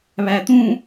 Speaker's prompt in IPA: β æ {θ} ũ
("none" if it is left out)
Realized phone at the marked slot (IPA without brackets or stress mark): t̪